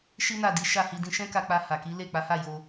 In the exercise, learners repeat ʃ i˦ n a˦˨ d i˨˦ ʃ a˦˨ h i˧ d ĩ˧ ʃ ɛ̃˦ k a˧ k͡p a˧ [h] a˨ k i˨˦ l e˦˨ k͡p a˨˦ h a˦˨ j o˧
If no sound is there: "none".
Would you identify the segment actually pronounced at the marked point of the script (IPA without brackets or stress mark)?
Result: h